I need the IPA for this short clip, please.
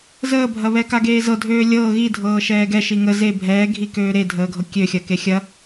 z əː bʱ ɐ β ɛ k a ɡ eː z ɤ dʱ øː lʲ ɤː ɣ i dʱ ɤː ʃ ɛː ɡ ɛ ʃ i ŋ ə z e bʱ ɛː ɡʱ i k øː ɾ e dʱ əː ɡʱ ɤ kʲ ø xʲ ɐ k e xʲ ɐ

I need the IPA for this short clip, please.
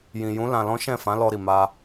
j ĩ˨ j ũ˨˦ l ã˧ l ɔ̃˦ ʃ ɛ̃˦˨ f ã˨˦ l ɔ˧ ɾ i˨ m a˧

